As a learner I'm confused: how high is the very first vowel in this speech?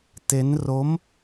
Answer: mid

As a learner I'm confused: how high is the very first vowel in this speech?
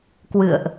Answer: high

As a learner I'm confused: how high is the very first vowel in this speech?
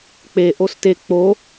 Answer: mid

